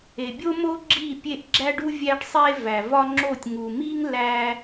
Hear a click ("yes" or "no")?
yes